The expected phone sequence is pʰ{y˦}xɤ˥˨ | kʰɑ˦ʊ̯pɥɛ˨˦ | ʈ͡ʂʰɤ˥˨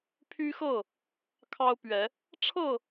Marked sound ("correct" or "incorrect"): correct